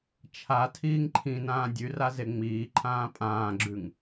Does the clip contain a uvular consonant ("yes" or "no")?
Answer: no